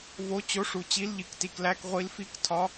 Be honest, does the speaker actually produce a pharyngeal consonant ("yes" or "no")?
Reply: no